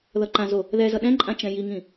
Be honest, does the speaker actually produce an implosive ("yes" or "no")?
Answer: yes